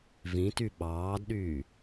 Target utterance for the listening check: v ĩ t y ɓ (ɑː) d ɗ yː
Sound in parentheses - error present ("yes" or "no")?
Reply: no